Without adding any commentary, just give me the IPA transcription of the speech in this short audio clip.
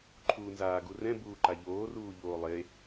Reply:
ǃʰ uː n z aː ɡ u r ɛ̃ b uː ǃ a ʎ oː r uː ʎ oː lˠ e

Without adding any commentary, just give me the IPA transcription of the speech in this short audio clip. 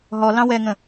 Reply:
ɦ ɔ l ɑ̃ w ɛ ŋ ə̃

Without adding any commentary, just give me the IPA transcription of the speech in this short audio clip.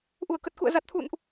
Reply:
ʔ u˧˩ ə̯ k ə˨˩ t̚ k ṵ˧˨ ə̯ z a˨˩ t̚ t̪ʰ ṵ˧˨ n ʔ

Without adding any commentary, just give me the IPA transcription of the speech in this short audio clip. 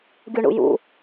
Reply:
ɡʲ u ɳ ṵ j ṵ

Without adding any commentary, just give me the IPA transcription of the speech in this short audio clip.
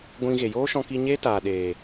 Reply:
ɡʷ ĩ˧ ɣ e˨ j oː˦ ʃ ɔ̃˧ k i˧ ɲ eː˦ t aː˨ ɗ eː˨

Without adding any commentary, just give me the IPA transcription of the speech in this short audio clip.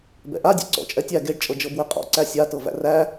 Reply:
b ɛ̰ ʔ a dʲ ḛ ǀ ɔ̰ t͡ʃʼ ɛ tʲ æ ɡ e ɖ t͡ʃʼ ɤ d͡ʒ ɤ b w e qʼ ɔ̰ ǀ æ sʲ a t ɤ v æ̰ r æ

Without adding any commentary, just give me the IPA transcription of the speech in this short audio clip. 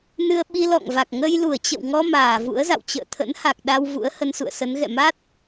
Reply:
n ɨ˧ ə̯ ɓ i˧ l ɔ̰˧˨ ŋ v a˨˩ k̚ ŋ ə˧ j l u˧˩ ə̯ t͡ɕ ə̰˧˨ w ŋ ɔ˧ m aː˧˩ v ṵ˧˥ ə̯ z a̰˧˨ w t͡ɕ ə̰ː˧˨ t̪ʰ ə̰˧˥ n h a˨˩ k̚ ɗ a˧ w v ṵ˧˥ ə̯ h ə˧ n s ṵ˧˨ ə̯ s ə˨˦ n ɣ ɛ̰˧˨ m a˦˥ t̚

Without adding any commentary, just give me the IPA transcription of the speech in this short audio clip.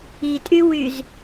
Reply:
i tʼ y w y z

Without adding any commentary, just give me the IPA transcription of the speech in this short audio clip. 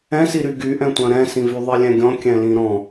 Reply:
ɛ̃ s i ɾ y ɡ y ʔ ɛ̃ tʷ œ̃ ɾ ɛ̃ s ĩ v y ðˤ i lʲ ɛ̃ ɡʲ ɔ̃ kʲ ɛ̃ l ĩ ɾ ɔ̃

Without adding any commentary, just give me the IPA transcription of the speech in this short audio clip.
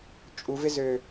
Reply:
t͡ʃʼ u v ɪ z ø

